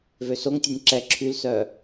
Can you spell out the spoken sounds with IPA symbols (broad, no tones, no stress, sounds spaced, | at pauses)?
v ø s o ŋ tʲ ø nʲ ǁ ɛ ǁʰ y l s œ